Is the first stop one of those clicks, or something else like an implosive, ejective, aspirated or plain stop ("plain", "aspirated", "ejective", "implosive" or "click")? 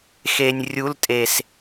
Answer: ejective